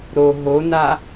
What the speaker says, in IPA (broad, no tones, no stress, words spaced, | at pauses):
ɾo ɦona